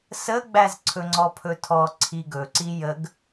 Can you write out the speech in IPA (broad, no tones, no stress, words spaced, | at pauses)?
səɡ͡bæz ǀʰɵŋ͡ǀɔpʰɵtʰɔ ǀʰiɡɵǀi jəɡ